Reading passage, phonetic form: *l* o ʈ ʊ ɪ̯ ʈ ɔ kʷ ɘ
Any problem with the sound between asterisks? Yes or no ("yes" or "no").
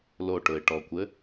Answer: no